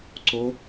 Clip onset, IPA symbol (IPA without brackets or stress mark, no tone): ǀ